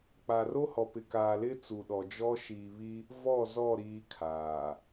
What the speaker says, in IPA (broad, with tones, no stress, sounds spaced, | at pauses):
k͡p a˨ r o˦ h ɔ˨ p ɪ˨ k aː˨ l ɪ˦ t͡s u˨ ɗ ɔ˨ d͡ʒ ɔ˦ ʃ iː˨ β i˦ | v ɔ˦˨ z ɔ˦˨ ɾ iː˦ kʰ aː˨